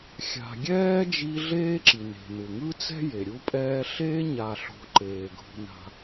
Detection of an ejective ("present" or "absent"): present